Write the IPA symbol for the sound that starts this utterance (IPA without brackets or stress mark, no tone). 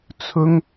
t͡sʰ